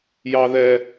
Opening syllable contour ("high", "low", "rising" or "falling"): high